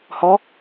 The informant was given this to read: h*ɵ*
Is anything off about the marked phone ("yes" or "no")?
yes